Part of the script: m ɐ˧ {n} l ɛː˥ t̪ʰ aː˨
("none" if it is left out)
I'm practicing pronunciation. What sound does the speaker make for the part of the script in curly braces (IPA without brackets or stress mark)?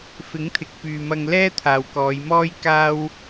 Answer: ŋ